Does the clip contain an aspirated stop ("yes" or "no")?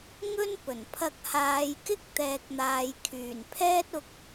yes